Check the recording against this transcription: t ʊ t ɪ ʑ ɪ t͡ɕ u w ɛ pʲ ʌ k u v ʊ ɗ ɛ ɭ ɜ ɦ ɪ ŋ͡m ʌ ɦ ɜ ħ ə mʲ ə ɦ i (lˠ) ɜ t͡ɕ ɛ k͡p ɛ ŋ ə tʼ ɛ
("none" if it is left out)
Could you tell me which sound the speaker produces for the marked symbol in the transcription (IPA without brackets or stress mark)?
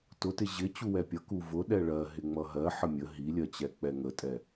lʲ